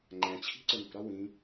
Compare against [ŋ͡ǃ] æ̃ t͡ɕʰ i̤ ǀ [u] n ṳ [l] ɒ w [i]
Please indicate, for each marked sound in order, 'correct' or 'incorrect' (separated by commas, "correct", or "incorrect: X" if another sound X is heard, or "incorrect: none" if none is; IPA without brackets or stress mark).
correct, incorrect: ʊ, incorrect: ɾ, incorrect: ĩ